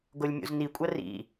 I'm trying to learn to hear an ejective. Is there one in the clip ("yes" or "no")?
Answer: yes